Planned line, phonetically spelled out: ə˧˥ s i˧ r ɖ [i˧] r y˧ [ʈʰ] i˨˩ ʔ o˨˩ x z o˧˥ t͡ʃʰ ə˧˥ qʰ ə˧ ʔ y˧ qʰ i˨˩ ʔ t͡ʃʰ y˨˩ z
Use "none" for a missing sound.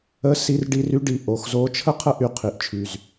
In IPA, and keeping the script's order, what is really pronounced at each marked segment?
i˧, ɖ

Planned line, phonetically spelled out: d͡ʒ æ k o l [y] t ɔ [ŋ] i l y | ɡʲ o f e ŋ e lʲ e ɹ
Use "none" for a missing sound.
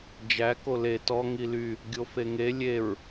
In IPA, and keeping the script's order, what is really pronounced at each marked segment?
e, ŋ

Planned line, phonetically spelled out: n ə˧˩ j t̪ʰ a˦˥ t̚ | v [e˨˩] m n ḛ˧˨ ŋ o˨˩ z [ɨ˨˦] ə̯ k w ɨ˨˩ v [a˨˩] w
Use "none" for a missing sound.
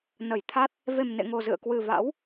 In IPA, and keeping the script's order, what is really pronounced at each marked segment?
e˨˩, ɨ̰˧˨, a̰˧˥

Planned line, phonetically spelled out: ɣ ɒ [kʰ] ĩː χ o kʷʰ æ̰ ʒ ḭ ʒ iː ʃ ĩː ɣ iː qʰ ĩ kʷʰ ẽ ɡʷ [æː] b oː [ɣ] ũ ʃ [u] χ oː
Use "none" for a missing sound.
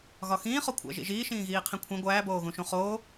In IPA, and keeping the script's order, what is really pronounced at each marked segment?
x, æː, ɣ, ũ

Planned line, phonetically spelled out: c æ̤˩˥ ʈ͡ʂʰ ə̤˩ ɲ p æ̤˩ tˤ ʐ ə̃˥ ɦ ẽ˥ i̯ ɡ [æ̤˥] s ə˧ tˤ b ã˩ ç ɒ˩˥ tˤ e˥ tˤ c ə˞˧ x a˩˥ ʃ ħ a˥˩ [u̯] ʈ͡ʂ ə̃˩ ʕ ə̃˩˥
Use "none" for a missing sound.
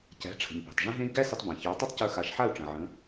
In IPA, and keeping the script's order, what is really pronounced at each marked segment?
æ˥, u̯

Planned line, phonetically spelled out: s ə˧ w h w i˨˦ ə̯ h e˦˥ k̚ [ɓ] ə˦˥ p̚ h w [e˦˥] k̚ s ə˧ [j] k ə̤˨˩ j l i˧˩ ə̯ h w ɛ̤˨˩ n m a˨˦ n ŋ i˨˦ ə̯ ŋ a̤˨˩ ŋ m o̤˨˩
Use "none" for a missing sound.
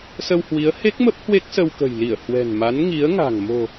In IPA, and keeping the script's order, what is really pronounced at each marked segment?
m, e˦˥, w

